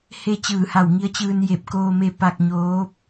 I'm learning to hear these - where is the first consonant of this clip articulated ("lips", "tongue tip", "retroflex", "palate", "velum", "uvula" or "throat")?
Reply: throat